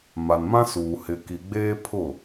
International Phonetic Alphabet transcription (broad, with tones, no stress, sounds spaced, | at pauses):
m a˨ n m ã˦ s uː˨ h ɪ˨ k i˨ ɡ͡b eː˦ pʰ ʊ˦˨